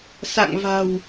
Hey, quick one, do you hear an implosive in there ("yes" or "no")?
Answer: no